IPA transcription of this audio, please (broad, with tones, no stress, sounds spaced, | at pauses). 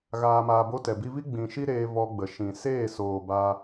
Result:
ɣ aː˧ m aː˧ b o˦ t ɛ˨ b i˧ v i˦ ɡ͡b ĩ˨ ʃ i˦ ɾ eː˧ v ɔ˧ ɡ͡b ə˨ ʃ ĩ˨ s eː˦˨ s oː˨ b a˧